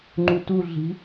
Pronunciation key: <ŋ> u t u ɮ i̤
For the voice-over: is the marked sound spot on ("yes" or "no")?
no